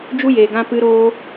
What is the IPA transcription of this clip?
d͡ʒ u˦ j eː˨ ɡ ã˧ p ɨ˧ ɾ oː˧

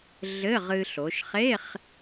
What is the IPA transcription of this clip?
ɮ ɘ˧˥˧ ʁ ɨ˧ ɬ o˩˧ ʃ χ e˧˥˧ χ

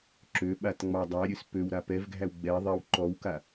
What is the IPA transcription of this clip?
ǁ ø ɓ a t ŋ͡m ɑ dˤ æ ɾʲ ø s p ø w ɾ a p ɛ v ɡʱ æ w ɡ͡b ɛ ðˤ e w ǃ ɔ w k a

